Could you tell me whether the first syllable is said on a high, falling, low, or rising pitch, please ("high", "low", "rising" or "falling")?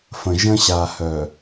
low